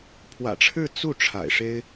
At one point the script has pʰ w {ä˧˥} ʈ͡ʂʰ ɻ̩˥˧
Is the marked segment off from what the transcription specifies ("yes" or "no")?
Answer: yes